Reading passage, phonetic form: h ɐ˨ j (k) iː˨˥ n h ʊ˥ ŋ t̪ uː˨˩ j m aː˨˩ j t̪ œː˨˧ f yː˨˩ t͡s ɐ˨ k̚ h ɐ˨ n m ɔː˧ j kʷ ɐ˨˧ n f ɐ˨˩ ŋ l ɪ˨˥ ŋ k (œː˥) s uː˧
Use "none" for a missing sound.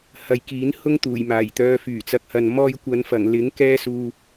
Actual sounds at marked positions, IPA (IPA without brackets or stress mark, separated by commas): k, ɛː˥